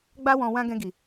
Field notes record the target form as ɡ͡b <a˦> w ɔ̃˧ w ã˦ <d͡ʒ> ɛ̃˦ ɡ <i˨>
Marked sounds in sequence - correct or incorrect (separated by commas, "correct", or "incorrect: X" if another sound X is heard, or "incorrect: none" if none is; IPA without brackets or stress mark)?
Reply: correct, incorrect: ɡ, incorrect: i˧